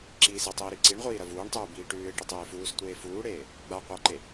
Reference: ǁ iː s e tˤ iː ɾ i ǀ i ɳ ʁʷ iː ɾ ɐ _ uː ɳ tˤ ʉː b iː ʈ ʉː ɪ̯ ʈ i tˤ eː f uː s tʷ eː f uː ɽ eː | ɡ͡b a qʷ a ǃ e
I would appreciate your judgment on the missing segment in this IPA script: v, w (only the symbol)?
v